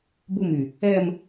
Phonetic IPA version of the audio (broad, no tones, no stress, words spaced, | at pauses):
bumy | ɛm